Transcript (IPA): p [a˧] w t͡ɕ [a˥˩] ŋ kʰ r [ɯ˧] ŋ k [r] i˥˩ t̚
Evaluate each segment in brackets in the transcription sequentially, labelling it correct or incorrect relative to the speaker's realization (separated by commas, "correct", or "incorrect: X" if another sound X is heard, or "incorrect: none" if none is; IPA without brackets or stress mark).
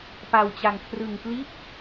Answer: correct, incorrect: a˧, correct, incorrect: l